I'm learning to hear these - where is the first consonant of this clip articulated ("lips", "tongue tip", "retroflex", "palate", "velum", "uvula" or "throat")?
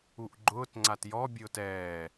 throat